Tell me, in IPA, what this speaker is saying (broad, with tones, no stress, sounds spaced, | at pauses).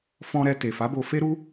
f ɔ̃˧ ɾ ɛ˧ t e˨ f a˨˦ b o˧ f e˦ ɾ u˦